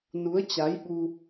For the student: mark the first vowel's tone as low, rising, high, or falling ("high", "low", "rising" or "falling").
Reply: rising